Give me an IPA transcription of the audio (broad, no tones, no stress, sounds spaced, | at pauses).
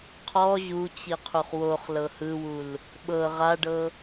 qʰ ɔ ʑ u t͡ɕ i qʰ u χ w o χ l ɤ h ɯ w u l | ɓ ɤ ʁ a ɖ ɤ